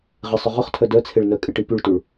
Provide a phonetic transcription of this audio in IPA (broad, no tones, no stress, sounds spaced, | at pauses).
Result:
ʁ ɪ sˤ ʏ ʁ ʊ χ tʰ œ d œ t͡sʰ e ɭ n œ kʼ ɪ ʈ i p y ɭ t u ɭ